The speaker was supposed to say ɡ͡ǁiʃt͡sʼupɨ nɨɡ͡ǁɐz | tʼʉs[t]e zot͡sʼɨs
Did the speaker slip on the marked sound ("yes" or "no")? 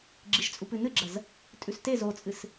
no